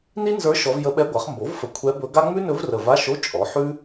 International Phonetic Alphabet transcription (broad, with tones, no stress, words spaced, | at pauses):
ni˥nzə˞˧˥ ʃɔ˧˥v jə˧˥ɓɛ˧˥ɡʷa˩˥χ mbo˩˥vfə˨˩ kʷʰɛ˧˥bɵ˧˥ɡa˥ ŋ͡mʉ˥nɵ˧˥vrə˨˩ va˧˥˧ʃo˧˥˧ t͡ʃʼɔ˩˥ħʉ˥